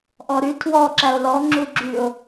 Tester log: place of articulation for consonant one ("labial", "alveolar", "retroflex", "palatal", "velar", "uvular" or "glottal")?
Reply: glottal